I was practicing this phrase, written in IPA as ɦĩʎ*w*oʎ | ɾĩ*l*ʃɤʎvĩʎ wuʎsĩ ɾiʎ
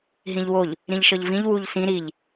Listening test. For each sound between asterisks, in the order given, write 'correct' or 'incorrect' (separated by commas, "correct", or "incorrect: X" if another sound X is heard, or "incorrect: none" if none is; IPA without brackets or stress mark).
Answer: correct, incorrect: ʎ